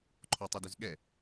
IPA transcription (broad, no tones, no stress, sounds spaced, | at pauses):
ǃʰ ɔ tˤ i d ʏ z ɠ ɛ